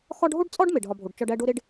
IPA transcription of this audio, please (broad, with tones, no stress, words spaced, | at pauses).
xɒ˥ɖ ɦo˥ɖt͡sʼɒ˥ɖ me˩ɖɦɒ˨bʱo˩ɖ t͡ʃɒ˦ɖæ˥ ɖo˥ ɾe˥ɖ